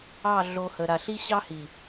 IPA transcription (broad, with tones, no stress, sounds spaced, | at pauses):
ɑ˦˨ ɮ o˨ h ə˨ ɾ a˨ ɬ i˦ ɕ ɑ˦ h i˨